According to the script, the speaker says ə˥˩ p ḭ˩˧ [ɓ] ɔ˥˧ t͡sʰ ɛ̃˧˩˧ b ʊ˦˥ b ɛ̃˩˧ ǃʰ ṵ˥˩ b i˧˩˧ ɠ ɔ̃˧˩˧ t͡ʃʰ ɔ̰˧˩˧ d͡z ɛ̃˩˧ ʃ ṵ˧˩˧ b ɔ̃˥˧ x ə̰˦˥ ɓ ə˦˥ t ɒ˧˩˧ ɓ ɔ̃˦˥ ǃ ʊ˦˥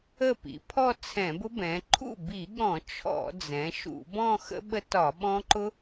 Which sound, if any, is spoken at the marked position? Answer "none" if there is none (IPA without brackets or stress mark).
pʰ